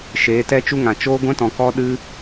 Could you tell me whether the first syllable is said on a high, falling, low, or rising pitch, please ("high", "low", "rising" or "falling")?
rising